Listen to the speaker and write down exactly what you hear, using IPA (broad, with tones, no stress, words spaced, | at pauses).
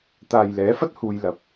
t̪aː˨jlɛː˨˥fɐ˥t̚ huː˧jlɐ˨p̚